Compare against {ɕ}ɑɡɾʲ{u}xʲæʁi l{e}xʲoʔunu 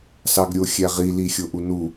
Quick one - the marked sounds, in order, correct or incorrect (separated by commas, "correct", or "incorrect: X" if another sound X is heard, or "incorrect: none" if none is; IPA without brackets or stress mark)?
incorrect: s, incorrect: o, incorrect: i